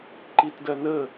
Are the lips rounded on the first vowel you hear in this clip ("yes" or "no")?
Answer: no